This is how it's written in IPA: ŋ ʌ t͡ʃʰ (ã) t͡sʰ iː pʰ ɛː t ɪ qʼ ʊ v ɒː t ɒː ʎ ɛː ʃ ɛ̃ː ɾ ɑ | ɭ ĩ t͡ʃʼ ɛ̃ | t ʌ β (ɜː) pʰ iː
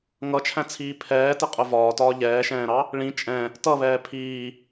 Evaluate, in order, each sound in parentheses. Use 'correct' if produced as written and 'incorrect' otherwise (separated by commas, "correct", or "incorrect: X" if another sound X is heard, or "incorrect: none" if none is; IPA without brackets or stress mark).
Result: incorrect: æ̃, incorrect: ɛː